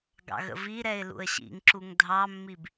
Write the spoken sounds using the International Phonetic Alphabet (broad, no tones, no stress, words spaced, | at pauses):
ɡɑ̰ɣə̰viɾɛɪ̯ lṵə̯ɕḭŋǁuŋ dʱɑmːib